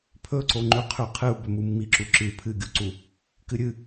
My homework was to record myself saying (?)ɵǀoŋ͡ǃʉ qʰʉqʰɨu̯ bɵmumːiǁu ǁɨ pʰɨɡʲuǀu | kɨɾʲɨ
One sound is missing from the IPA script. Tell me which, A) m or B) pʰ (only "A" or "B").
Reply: B